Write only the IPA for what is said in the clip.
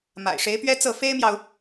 m a̰˨˩ ɪ̯ ʂ e˧˥ ɪ̯ p ɥ ɛ˥ t͡s ɤ˥˩ f e˥ ɪ̯ m j ɑ˨ ʊ̯

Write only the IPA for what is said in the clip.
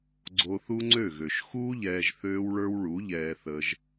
ɡ͡ǀ o˧ θ u˦ ŋ͡ǀ ø˦˨ ɣ ø˨ ʃ x uː˦ ʎ ɛː˧ ʒ θ øː˦ w ɭ ə˞˦ w ɭ u˨˦ ʎ ɛː˧ θ ə˧ ʒ

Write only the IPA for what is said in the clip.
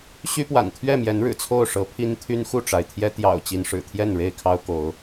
ɕ y˦ p w a̰˨˩ n t̪ʰ ɥ ɛ˥˨ m j ɛ˨˦ n ɻ ɻ̩˨˩ t͡sʰ o˥˨ ʊ̯ ʂ ɤ˨˦ pʰ i˦ n t̪ʰ y˦ n x u˥˨ ʈ͡ʂ a˩ ɪ̯ t̪ʰ j ɛ˦ t̪ j ɑ̰˨˩ ʊ̯ t͡ɕ i˦ n ʂ ɻ̩˨˩ t̪ʰ j ɛ˥˨ n ɻ e˥˨ ɪ̯ kʰ ɑ˦ ʊ̯ k o˨˦ ʊ̯

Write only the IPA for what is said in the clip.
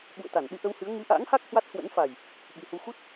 ɓ ṵ˧˨ ə̯ t̪ a˧˩ n ɗ ɨ˧ ʔ ə˧ w h ɨ˨˦ ə̯ ŋ ɨ˨˦ ʔ a̰ː˧˥ ŋ h a˦˥ k̚ h w a˦˥ t̚ h w ə̰˧˥ n f a˨˩ j | ɓ i˨˩ h u˧ x u˦˥ t̚

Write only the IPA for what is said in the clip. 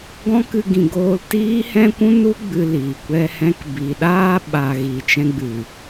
ɡ ɔ̃˦ k ɨ˧ ɡ ĩ˨ ɡ oː˧ l t iː˦ h ɛ̃˦ kʷ ũ˦ n u˦ ɡ͡b ɨ˧ l iː˨ kʷ ɛ˧ h ɛ̃˧ k b i˨ ɗ aː˧ ɓ a˨ ɣ i˨ t͡ʃ ɛ̃˧ ɡ͡b ɨ˨

